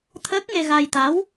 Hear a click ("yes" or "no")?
no